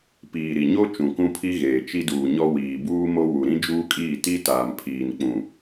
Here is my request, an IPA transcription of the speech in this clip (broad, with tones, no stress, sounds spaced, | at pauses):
p iː˨ ɾ i˨ ɲ o˦ t͡ʃ ũ˨ k ũ˦ pʰ i˦ ɣ eː˨ t͡ʃ i˦ d uː˨ ɲ ɔ˦ w iː˨ b uː˦ m o˦ w u˨ ɾ ĩ˦ d͡ʒ uː˦ kʼ iː˦˨ t i˦ t aː˨ m pʰ iː˨ n k͡p ũ˨